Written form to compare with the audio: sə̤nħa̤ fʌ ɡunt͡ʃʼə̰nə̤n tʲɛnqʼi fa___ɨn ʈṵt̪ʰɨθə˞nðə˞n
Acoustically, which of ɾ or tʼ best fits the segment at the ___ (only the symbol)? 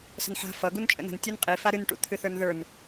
ɾ